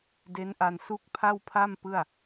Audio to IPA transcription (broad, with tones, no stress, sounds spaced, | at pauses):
d e˦˥ n ʔ a˧ n s u˥˩ k̚ pʰ a˥˩ w pʰ a˥˩ m p ɯ˥˩ a̯